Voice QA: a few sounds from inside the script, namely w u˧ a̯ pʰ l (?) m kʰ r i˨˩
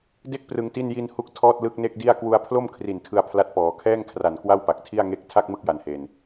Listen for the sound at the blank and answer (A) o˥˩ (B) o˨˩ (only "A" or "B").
A